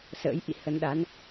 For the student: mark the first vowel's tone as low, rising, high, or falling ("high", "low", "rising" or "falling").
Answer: rising